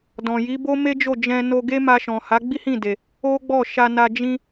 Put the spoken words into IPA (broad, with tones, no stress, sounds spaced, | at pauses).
d ɔ̃˨ j i˨˦ b o˦ m e˦ d͡ʒ o˦˨ d͡ʒ ɛ̃˧ n o˧ ɡ e˦ m a˧ ʃ ɔ̃˨ h a˨˦ ɡ͡b i˦ h ĩ˦˨ d e˨ | o˦ ɡ͡b ɔ˦˨ ʃ a˧ n a˧ d͡ʒ ĩ˧